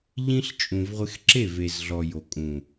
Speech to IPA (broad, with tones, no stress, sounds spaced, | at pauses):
ʎ ĩ˦ ɬ t͡ʃʼ ũ˨ v ʁʷ ɪ˧ x ǁ e˦˨ v e˨ z ɮ ɔ˨ j o˨ kʼ ũ˨